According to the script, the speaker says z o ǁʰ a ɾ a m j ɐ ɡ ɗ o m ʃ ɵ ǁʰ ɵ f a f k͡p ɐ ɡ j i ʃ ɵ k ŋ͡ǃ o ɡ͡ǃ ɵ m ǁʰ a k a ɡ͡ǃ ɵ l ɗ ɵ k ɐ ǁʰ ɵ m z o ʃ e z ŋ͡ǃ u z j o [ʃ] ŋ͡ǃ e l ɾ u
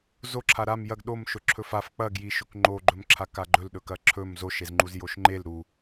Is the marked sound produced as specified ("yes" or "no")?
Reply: yes